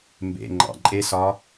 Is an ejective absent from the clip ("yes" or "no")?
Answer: no